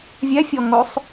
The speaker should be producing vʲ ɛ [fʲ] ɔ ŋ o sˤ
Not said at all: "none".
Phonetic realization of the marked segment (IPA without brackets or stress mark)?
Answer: fʲ